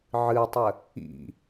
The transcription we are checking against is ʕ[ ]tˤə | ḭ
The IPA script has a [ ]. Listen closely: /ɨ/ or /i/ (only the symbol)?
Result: ɨ